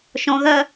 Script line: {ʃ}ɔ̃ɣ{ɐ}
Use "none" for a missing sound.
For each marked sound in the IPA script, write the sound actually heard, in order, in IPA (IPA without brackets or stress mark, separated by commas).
ʃ, ɐ